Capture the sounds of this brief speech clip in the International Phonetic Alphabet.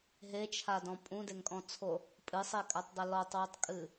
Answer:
ɦ e t͡ʃʰ a d ɔ̃ pʼ ũ d e ŋ kʼ ɔ̃ t͡sʰ o | pʼ ɨ sˤ e kʼ a tˤ dˤ ɘ l ɔ tˤ w u tˤ kʼ ɨ

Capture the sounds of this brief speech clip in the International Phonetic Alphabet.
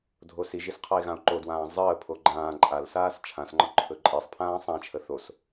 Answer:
dʱ o s i ʒ i s qʰ ɒ e̯ ɣ ã o̯ ǃ o d w ãː zˤ əː pʰ o ɡ͡ǃ ãː ǃʼ a l s aː s t͡ʃʰ ã s ŋ͡ǃ ɒ ǃʰ ɵ ǃʼ i sˤ pʰ ãː sˤ ã t͡ʃʰ ə θ o s

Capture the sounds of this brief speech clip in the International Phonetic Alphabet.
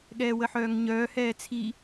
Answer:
ɠ ɛː w ə ħ œː ŋ ɲ œː h ɛː t͡sʰ i

